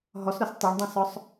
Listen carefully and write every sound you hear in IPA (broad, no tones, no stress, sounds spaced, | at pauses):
ɦ ɔ s ɾ ɔ s tˤ o ɳ dˤ ɛ̃ s ɔ sˤ